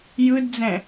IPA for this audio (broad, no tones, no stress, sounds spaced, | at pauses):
j ɯ d d͡z ɛ̃